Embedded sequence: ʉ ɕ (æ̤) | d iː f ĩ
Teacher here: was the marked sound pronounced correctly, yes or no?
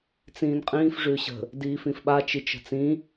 no